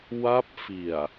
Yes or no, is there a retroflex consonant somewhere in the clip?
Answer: no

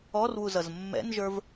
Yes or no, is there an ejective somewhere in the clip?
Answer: no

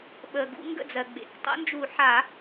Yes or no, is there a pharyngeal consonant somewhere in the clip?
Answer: yes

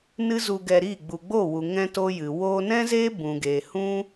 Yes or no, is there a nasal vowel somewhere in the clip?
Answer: yes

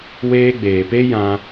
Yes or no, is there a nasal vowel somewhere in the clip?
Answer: yes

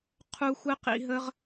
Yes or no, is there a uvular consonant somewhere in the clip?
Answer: yes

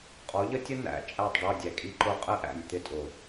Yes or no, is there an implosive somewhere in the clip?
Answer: no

